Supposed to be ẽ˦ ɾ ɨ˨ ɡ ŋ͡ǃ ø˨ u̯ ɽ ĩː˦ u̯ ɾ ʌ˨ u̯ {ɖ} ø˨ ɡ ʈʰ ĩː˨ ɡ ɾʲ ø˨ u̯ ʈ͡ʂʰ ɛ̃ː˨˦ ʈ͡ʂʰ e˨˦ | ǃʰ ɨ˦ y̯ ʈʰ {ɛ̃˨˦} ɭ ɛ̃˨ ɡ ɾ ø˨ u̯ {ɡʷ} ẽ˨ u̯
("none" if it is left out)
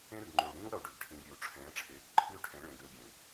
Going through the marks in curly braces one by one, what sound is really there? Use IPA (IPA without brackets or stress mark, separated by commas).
ɖ, ɛ̃˨˦, ɡʲ